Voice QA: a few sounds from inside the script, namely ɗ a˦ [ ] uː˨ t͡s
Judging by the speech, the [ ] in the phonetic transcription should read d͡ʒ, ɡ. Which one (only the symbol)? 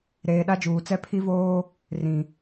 d͡ʒ